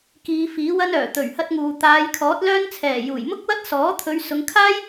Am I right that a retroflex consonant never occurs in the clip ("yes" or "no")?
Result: yes